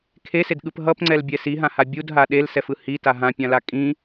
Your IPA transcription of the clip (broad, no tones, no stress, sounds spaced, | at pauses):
kʰ e s e d ɠ ɯ p ɦ ʌ p ŋ͡ǀ ɛ l bʲ ɛ s i ɦ ã h a bʲ u d ɦ a ɗ e l s ɛ f ɯ h i t a ɦ ã pʲ ã l a kʼ ĩ